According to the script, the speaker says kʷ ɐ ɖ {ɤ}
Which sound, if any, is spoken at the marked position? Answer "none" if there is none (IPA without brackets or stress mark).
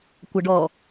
ɔ